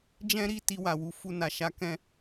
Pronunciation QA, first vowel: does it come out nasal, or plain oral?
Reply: nasal